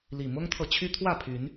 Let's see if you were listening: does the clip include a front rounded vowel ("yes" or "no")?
yes